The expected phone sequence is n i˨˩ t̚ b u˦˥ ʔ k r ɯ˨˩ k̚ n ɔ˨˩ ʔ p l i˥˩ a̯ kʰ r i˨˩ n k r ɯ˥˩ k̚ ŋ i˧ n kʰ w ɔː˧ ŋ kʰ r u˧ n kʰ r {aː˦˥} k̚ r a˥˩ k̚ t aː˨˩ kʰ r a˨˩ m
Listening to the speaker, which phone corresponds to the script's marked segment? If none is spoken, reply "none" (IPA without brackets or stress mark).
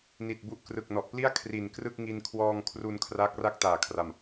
aː˦˥